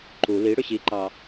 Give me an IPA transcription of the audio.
ǃu li ɽʏɕiǃɑ

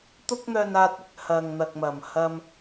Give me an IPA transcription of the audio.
t̪ʊ˥k̚n̪œː˧naː˧t̚ɪ˧k̚ hɐ˨ŋn̪ɐ˨k̚mɐ˨˩m hɐ˧m

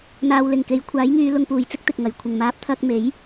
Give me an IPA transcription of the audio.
n̪aː˨wlɪ˨˩ŋke˨˧j kʷʰaː˨˥jŋyː˨˧ lʊ˧ŋpuː˨˩jt͡sɪ˥k̚ t̪ɪ˨k̚ŋɐ˨˩j kʷʰɪ˨˩ŋmaː˨˥p̚ t̪ʰɐ˧k̚me˨˥j

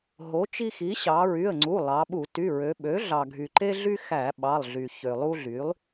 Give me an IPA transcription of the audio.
ɦo˩˥t͡ʃi˦xi˩˥ ɕɑ˩˧ɹy˩˧˩ə̯ŋ͡ǀu˩˧˩ lˠɑ˩˧ɓu˧˩˧ ty˩˧˩ɹø˩˧ɓø˩˥ ɮɑ˩ɡʱy˩ǃe˦ɮy˦ xæ˧˩˧ɓɑ˩˧˩lˠɮy˩ çø˩ lˠu˦ɮy˩˥lˠ

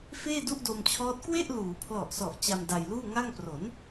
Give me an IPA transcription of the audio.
feː˥˩du˥˩ʔdo˧mt͡ɕʰɔː˦˥t̚ kwe˥˩ʔluː˩˦ pʰlɔ˨˩ʔsɔ˨˩ʔ t͡ɕa˧m da˧jluː˥˩ ŋa˥˩ŋ pro˩˦n

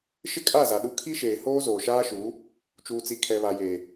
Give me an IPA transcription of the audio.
ʃɪ˦kʼa˦˨ za˨ɗu˦ kʰi˦ʃeː˨ hoː˦zoː˨ʃaː˦ʃuː˨˦ | t͡ʃuː˨t͡si˨ kʰɛ˨βa˨jeː˨

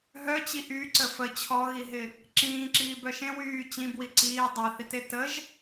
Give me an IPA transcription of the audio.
ɦœt͡ɕi ʔyǀə fə t͡ɕʰɔɣiɦɪ | ǁĩːǁiːbœ ʃẽ wyː t͡ɕĩbwi ǀiː dˤaθite təʒ

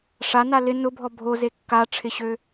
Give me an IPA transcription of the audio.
ʂana lɪ nʊbʱɔ bʱoze kːaʈ͡ʂʰɪɕø

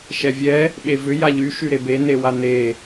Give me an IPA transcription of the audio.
ʃɛvʲɛ | ɓevʏ jaʎy ʃyɾebe newane

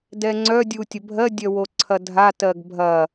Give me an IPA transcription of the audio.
dɛŋ͡ǀœ dʲutʲəbʱɜ dʲœwoǀʰɐdʱa tɜɡbʱɐ

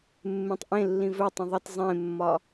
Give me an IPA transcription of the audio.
mːẽtˤʔẽlːĩ vɵtˤə̃ ðˤət zˤẽmːɒ

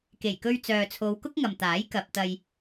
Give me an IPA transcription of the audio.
ke˨˩jkɵ˧ɥt͡sœː˨t͡sʰo˨˧w kʊ˥k̚ŋɐ˨mt̪aː˨˥j kɐ˨p̚t̪ɐ˧j

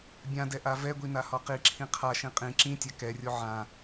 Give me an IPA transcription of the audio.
bʲãdɛ ʔavɛɡʷi nahɒqiǁʰĩ qʰaʃĩ qʼĩ ǁĩtʲa kɛrʲo ʕã

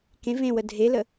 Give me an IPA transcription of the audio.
kẽ vẽwə dʱelə

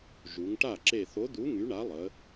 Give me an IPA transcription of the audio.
ʒu˩˧ŋʈa˥˩ ǁe˧˩θo˨˥d̪u˨˥ ŋy˨˥ɳa˨˥lˠə˩˧

